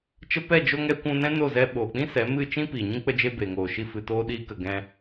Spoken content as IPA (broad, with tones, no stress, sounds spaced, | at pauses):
t͡ʃ ə˧ p ɛ˦˨ d͡ʒ o˧ ŋ ɛ˧ kʷ ũ˧ n ɛ̃˦ n o˦˨ z ɛ˧ ɓ oː˨ k͡p ĩ˦ s ɛ˨˦ m ɨ˦˨ t͡ʃ ĩ˦ p iː˨ ɲ ĩ˦ k͡p ə˦ d͡ʒ e˧ b eː˨ ŋ oː˨ ʃ i˦ f ɨ˧ t oː˦ ɗ iː˦ k ə˧ ɡ ɛ̃˧